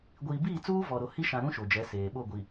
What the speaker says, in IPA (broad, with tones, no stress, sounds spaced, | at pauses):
ɡʷ iː˨ b iː˦˨ t͡s uː˦ v ɔ˨ ɾ o˨ h i˦ ʃ ã˨ ɾ ũ˦ ʃ o˨ d͡ʒ ɛ˨˦ s eː˨ ɓ o˦˨ ɡʷ i˨